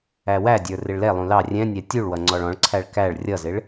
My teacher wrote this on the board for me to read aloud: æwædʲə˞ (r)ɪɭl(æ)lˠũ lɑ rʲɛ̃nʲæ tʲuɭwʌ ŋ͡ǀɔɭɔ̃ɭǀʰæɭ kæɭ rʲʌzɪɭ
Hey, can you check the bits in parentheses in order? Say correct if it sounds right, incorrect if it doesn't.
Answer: correct, incorrect: ɛ

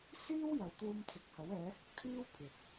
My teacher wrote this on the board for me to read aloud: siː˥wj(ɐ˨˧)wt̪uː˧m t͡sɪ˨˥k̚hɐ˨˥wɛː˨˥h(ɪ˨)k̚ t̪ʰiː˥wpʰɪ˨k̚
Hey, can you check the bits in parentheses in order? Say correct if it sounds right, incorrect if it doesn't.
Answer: correct, incorrect: ɪ˧

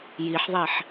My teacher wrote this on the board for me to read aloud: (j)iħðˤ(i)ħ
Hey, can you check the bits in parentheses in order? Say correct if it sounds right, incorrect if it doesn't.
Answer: correct, correct

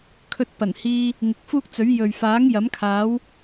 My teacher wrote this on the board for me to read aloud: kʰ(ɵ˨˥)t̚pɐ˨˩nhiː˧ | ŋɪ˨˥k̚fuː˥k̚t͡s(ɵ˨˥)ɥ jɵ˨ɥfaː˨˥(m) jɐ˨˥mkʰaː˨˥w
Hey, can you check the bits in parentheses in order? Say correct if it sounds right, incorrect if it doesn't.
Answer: incorrect: ɵ˧, correct, incorrect: ŋ

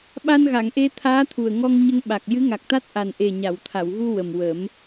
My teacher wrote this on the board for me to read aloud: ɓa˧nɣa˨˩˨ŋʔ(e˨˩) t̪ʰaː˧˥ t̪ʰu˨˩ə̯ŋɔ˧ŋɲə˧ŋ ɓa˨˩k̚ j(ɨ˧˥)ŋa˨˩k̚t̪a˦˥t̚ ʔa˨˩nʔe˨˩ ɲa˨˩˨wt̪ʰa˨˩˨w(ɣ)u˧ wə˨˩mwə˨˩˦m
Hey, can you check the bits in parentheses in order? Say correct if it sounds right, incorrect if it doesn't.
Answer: incorrect: e˧, correct, correct

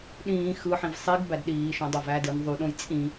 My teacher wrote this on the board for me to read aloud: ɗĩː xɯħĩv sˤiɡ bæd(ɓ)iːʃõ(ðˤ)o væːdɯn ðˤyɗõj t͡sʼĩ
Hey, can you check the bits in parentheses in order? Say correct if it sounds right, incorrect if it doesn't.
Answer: incorrect: ɗ, incorrect: dˤ

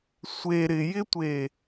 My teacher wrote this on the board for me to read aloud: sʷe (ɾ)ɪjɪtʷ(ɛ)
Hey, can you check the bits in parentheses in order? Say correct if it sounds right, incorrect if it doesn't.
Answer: correct, incorrect: e

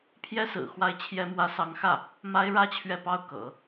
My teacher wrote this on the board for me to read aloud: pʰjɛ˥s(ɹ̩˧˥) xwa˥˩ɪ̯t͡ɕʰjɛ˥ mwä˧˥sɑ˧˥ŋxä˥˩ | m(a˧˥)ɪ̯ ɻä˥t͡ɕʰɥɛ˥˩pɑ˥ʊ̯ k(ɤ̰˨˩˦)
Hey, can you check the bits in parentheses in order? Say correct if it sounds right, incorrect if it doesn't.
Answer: incorrect: ɹ̩˨˩, incorrect: a˥, correct

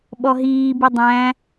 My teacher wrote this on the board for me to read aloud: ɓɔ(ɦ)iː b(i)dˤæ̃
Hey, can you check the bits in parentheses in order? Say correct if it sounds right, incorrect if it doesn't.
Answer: correct, correct

